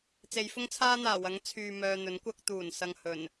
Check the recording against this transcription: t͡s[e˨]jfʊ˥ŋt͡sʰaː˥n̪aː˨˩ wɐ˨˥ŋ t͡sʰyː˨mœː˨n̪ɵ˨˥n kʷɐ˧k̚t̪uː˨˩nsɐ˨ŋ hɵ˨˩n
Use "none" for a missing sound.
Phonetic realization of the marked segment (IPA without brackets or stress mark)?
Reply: e˨˧